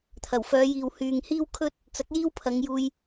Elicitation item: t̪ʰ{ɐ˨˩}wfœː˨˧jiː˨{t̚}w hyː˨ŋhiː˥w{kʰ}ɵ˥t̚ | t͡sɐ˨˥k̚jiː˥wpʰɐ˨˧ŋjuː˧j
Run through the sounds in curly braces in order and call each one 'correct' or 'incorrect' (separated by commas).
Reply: correct, incorrect, correct